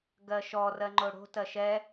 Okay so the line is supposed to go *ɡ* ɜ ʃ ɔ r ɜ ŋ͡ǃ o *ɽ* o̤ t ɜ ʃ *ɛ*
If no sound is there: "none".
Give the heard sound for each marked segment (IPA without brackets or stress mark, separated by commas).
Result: ɡ, ɽ, ɛ